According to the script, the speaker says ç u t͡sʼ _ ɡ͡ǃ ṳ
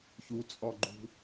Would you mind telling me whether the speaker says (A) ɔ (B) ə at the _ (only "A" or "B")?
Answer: A